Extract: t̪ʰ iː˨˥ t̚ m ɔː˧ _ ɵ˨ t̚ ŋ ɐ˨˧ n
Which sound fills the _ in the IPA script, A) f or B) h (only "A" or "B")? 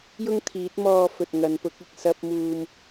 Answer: A